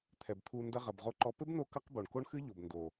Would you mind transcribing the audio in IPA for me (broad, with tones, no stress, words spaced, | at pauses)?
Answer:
t̪ʰɛ˨bt̪ʰu˧ ndɐ˧ʁɐ˨bʁo˧ǃɔ˧ pɘ˦bno˧ kɐ˦qbo˨ɳ ko˦ɳxɨ˦ʎo˨b ndo˨